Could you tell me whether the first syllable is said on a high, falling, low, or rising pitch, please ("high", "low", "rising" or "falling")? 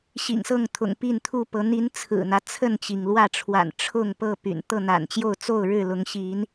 low